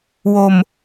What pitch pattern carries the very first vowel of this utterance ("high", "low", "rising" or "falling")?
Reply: low